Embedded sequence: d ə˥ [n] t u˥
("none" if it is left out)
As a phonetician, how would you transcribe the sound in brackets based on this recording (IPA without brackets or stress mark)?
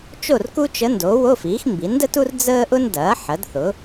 none